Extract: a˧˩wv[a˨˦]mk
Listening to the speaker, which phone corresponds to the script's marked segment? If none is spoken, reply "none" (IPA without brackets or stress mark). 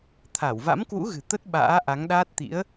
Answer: a̰˧˥